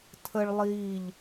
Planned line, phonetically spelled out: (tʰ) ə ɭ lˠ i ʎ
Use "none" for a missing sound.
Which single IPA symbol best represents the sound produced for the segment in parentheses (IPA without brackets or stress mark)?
tʰ